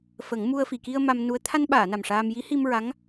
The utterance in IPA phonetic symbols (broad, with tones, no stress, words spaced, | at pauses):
fə˨˩˦ŋmu˧ə̯ fi˨˩˨ki˧ə̯ ma˧mnu˧˥ə̯ t̪ʰa˧nɓaː˨˩˨ na˨˩mʂaː˧m ji˧˥hi˧mɹa˧˥ŋ